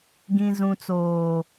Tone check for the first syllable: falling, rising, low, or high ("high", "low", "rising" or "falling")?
low